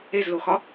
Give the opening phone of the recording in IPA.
e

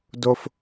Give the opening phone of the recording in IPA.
d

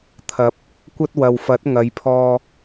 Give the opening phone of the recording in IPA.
t̪ʰ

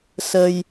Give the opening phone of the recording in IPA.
s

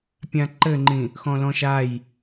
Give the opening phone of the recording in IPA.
pʲ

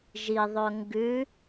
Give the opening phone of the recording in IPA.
ʒ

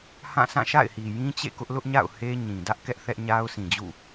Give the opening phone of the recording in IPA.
h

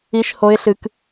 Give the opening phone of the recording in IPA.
i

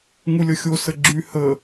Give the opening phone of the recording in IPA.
ŋ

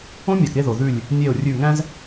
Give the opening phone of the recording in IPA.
õ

